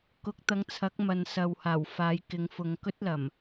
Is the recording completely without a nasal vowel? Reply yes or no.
yes